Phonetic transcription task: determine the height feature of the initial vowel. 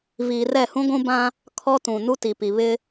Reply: high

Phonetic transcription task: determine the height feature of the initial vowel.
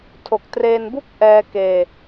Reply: mid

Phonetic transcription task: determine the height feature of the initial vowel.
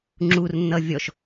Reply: high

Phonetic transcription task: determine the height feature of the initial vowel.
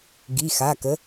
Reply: high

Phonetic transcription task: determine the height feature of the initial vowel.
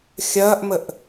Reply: low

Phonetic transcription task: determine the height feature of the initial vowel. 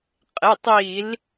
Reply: mid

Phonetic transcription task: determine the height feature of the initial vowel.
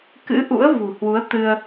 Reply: high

